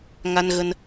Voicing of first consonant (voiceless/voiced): voiced